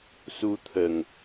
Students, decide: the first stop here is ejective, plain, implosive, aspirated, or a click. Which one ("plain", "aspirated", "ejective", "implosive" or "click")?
aspirated